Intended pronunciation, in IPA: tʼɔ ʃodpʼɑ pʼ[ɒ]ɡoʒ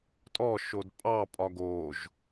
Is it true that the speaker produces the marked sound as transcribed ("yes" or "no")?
yes